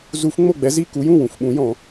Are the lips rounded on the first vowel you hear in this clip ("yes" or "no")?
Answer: yes